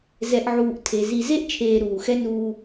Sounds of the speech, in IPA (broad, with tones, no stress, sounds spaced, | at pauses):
z ɛ˨ ʔ ʕ uː˨ ʔ tʰ e˨ z i˨ z e˦ ʔ t͡ʃʰ eː˨ ɾ uː˨ x ɛ˦ n uː˦